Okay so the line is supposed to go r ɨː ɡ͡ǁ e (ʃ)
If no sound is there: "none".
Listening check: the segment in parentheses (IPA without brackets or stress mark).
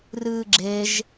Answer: ʒ